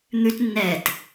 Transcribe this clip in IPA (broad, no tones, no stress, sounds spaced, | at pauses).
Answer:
n̪ ʉ t nː ɛː t